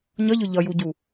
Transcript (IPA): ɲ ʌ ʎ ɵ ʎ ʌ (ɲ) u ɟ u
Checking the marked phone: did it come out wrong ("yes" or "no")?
yes